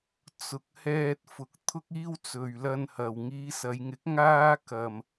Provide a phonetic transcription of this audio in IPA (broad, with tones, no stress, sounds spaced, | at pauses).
t͡s ʊ˨ k̚ h ɛː˧ t̚ f ʊ˨ k̚ t̪ʰ ʊ˥ k̚ iː˥ w t͡s ɵ˨ ɥ l ɐ˧ n h ɐ˨ w ŋ iː˨˧ s ɐ˨˧ j ŋ ɪ˨˥ k̚ ŋ aː˥ k ɐ˧ m